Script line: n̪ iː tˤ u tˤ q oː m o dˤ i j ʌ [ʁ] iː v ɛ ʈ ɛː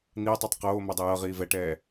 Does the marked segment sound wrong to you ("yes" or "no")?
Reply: no